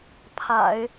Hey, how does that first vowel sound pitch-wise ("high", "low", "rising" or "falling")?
low